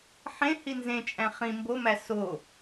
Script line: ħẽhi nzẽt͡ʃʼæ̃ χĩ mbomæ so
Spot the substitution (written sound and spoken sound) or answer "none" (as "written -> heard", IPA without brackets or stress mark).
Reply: none